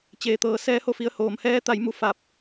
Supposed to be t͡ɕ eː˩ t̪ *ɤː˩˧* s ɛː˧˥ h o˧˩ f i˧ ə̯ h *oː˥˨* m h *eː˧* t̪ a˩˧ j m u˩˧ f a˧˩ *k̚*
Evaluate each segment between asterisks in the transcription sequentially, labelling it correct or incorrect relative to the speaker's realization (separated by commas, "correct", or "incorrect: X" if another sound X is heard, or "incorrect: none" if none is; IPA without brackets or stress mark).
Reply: correct, incorrect: oː˩˧, incorrect: ɛː˧, incorrect: p̚